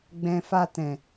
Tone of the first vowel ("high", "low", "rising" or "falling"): low